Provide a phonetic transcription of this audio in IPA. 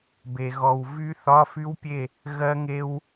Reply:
b e˩ ɣ ɔ˩ w v y˦˥ θ ɒ˧˥˧ f y˦˥ w pʲ e˥˨ | ɣ ɜ˦˥ ŋ e˦˥ w

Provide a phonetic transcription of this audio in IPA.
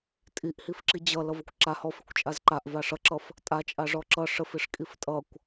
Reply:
tʼ i ʔ h i f ǁ i d͡ʑ ʌ l ʌ v ə kʷ ǁ a h ɔ f i kʷ t͡ʃʼ a z ǃ a ʔ v a ʂ ʌ ǁ ʌ f | tʼ a t͡ʃʼ a ʐ ɔ ǁ ʌ ʂ ə f i ʂ kʼ i f tʼ ʌ kʷ

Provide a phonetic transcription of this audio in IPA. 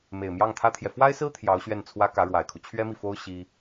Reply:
m e˨˩ ɪ̯ m j ɑ˥˩ ŋ t̪ʰ ä˥ t̪ʰ j ɛ˨ f w a˥ ɪ̯ s ɹ̩˥ t̪ʰ j ɑ˧˥ ʊ̯ ɕ ɥ ɛ˥˩ n t͡sʰ w ä˥ k ä˧˥ ɻ w a˨˩ ɪ̯ kʰ u˦ t͡ɕʰ ɥ ɛ˥ m i˨ f o˥ ʊ̯ ɕ i˥

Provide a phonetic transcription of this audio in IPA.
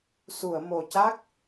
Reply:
s u˨˩˨ ə̯ m o˨˩ c a˦˥ k̚

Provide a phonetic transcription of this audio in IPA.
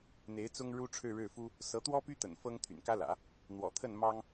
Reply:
n̪ e˧˥ ɪ̯ t͡s ʊ˥ ŋ ɻ u˥ ʈ͡ʂʰ ɻ̩˥˧ ɻ ɻ̩˥˩ f u˥ | s ɤ˧˥ t̪ w ɔ˥ p y˥ t̪ ə̰˨˩ n f ɤ˥ ŋ t̪ʰ y̰˨˩ n k ä˥ l ä̰˨˩˦ | n̪ w ɔ̰˨˩ t̪ʰ ə˥˩ n m ɑ˥ ŋ

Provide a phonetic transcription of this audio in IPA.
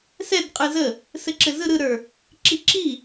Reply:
s ɛ d qʼ ɯ z ə | s ɘ ǁ ɘ z ɯ ɾ ɯ ɾ ə˞ | ǁ i ǁ i

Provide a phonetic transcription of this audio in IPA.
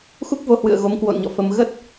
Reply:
x u˦˥ k̚ v o˧ h w ɨ̰˧˨ ə̯ ɣ o˨˦ m k w o̰˧˨ n ɲ ɔ̰˧˨ f ə˧ m ɣ ə˦˥ t̚

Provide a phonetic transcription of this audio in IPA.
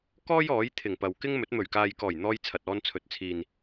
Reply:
k ɔː˥ j ɔː˨˥ j t̪ʰ ɪ˨˩ ŋ p ɐ˨ w k ɪ˥ ŋ m ɵ˨˥ t̚ m ɵ˨˩ ɥ k aː˨ j k ɔː˨˩ j n̪ ɔː˧ j t͡sʰ ɐ˨ t̚ ɔː˧ n t͡sʰ ɵ˨ t̚ t͡sʰ iː˨ n

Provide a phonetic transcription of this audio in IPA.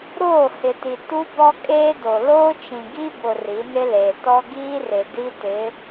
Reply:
ɾ oː˦˨ h ɪ˨ t i˨ t u˦ b ɔ˦ kʼ eː˦ d o˨ l oː˦ t͡ʃ ĩ˨ ɡ i˦ b ʊ˨ r i˨˦ n ɪ˦ l eː˨ t ɔ˦ ɡ iː˦ r ɪ˨ d i˦ t ɪ˨˦

